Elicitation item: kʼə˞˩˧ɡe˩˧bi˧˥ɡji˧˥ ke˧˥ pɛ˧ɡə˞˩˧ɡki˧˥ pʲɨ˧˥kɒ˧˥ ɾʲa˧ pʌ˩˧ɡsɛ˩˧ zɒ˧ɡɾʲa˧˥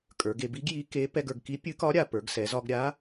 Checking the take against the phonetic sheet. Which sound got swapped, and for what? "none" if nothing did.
ʌ˩˧ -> ə˞˩˧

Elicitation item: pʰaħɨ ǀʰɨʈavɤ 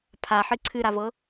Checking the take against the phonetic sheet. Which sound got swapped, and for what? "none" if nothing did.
ʈ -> ɾ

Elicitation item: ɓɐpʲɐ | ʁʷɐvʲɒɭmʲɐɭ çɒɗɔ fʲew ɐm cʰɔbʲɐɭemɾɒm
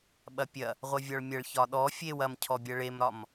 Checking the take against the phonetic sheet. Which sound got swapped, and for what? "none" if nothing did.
none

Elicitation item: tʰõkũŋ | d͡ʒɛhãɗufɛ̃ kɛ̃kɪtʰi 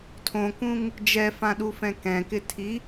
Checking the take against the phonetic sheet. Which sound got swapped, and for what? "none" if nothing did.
h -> f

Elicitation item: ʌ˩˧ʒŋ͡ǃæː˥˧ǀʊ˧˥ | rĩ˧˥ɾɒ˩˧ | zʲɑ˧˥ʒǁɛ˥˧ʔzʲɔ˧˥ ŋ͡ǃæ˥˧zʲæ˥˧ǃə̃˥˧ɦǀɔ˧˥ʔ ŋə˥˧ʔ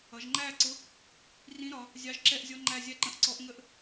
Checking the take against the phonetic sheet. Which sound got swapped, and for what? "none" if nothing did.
ɦ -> ʔ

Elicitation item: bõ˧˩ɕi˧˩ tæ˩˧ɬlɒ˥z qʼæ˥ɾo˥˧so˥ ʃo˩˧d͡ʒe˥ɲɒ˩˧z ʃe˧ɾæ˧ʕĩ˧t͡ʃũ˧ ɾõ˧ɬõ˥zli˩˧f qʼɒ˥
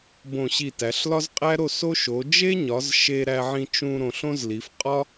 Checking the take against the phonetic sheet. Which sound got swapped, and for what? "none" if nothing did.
none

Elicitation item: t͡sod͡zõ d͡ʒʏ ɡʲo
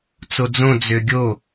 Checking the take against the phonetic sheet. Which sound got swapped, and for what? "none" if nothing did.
d͡ʒ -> d͡z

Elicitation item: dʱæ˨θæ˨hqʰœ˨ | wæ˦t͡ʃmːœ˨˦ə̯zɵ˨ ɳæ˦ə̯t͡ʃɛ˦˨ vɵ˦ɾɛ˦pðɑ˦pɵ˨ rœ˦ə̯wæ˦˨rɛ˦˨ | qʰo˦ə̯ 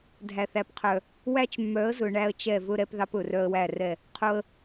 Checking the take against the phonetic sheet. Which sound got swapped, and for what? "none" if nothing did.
h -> p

